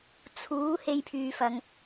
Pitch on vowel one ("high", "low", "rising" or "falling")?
rising